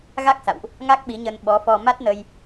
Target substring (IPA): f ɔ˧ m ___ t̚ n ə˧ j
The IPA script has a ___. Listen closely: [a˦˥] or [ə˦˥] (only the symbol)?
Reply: a˦˥